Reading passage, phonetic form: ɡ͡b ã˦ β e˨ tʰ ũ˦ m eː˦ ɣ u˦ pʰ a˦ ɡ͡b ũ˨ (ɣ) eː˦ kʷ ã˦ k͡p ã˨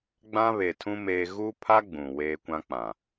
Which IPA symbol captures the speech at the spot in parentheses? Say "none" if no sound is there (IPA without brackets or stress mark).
w